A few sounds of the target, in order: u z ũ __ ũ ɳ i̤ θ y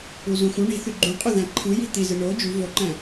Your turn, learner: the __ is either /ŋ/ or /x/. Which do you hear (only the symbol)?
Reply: x